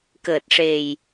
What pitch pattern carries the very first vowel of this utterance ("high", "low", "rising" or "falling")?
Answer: low